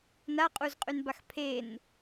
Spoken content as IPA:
n a qʼ u z qʼ y n b a x pʰ e n

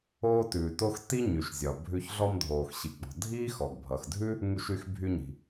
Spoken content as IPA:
oː˥ t ʉː˩ t o˥ x t i˥ ɲ y˩ ʃ zʲ ɒ˩ bʱ ʉ˧ ç ɮ ɔ˧ m dʱ oː˩ x ɕ i˩ ɡ͡b ɔ̤˩ dʱ iː˥ x ɔ˩ ɡ bʱ ʌ˩ x dʱ ʉ˥ | ŋ y˧ ʃ y˧ x bʱ y˧ ɲ i̤˩

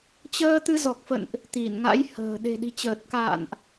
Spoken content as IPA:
t͡ɕ əː˧ t̪ ɨ˧ z ɔ˨˩ k̚ f ə̰˧˨ n ʔ | t̪ i˧˩ n ŋ a̰˧˥ j h ə̤ː˨˩ ɗ e̤˨˩ ɗ i̤˨˩ t͡ɕ əː˨˩ t̚ k a̰ː˧˨ n ʔ

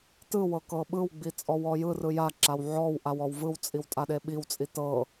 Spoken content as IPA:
t ɯ w ɤ k ɤ ɓ ɯ w ɡ͡b i t͡sʼ ɔ w ɔ j ɯ r ɯ j a ǁ a w ʕ ɔ w ʔ a w ɔ w v ɯ w t͡sʼ i w tʼ a ɗ e ɓ i w t͡sʼ i t ɤ

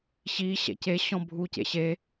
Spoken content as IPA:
ɕ i ɕ ɛ̰ c e ɕ ɔ̃ bʱ u c ḛ ɕ e

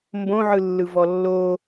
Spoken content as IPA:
m b õ ʕ ɯ lː ɯ v ɔ lː o

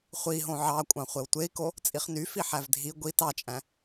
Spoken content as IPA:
χʷ i ɦ õ ʕ ɑ kʷʼ ɑ̃ χʷ e w tʷ e i̯ k o | t͡sʼ i χ n y f i ħ æ v dʱ i ɡʷ i t ɑ t͡ʃʼ æ̃

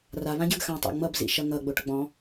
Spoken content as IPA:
r a β ã ɟ ə˞ ɡ x ã tˤ o̰ ŋ͡m ʌ b z ḭ ʃ ʌ ŋ ʌ ɡ͡b o ʈ ɡ͡b ɔ̃

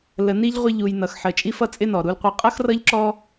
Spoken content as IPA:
l ə˧ n i˦ ʎ ʁʷ ɪ˦ ʎ u˧ j n ʌ˧ x ħ ə˧ t͡ʃʼ i˦ f ʌ˦ t͡sʼ ɪ˦ n ɔ˨ ɾ u˧ l qʷ ʌ˧ qʼ ʌ˦ x r ʌ˦ ʎ ǁ ɔ˦

